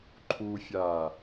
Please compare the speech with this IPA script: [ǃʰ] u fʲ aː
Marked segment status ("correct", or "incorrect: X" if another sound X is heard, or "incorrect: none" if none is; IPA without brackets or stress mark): correct